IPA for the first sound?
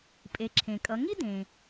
pʼ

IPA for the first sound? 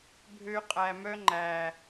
bʱ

